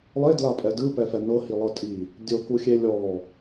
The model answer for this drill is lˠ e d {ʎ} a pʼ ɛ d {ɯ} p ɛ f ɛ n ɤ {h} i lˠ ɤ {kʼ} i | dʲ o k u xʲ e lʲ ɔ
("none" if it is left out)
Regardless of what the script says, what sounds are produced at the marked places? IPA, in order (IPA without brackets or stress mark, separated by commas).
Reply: l, ɯ, h, tʼ